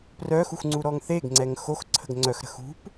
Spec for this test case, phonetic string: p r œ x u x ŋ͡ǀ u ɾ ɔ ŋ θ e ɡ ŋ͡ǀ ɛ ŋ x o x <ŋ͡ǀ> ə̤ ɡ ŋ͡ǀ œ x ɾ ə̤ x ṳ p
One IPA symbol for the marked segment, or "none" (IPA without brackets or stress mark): ǀʰ